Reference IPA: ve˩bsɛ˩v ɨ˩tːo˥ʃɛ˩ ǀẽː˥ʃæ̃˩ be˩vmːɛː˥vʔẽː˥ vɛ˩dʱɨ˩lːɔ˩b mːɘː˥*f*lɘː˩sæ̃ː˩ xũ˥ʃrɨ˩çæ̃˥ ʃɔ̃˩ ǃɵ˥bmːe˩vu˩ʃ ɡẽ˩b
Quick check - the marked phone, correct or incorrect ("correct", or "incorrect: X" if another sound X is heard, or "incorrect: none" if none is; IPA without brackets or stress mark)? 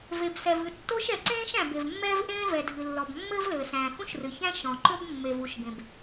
incorrect: v